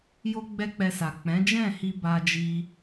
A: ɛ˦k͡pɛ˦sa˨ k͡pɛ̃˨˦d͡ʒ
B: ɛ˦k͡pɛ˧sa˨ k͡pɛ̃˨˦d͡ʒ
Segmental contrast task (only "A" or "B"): B